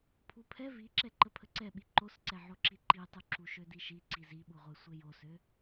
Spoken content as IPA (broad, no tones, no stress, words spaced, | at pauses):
pʰupʰɛ viǁɛǃə pʰəǀɛɓi ǃosǀɛʕoǁi ǃitˤu ǁuʃødiʃi ǀiziɓuʁʷe sʷejosø